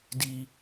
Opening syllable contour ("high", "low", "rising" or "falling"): low